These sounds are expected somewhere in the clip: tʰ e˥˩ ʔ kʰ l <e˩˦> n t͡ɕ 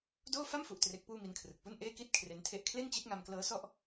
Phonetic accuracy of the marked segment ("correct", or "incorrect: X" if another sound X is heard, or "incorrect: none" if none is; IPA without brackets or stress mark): incorrect: e˥˩